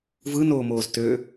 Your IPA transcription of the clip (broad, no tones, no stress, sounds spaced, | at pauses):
v ɯ n oː m oː z t ø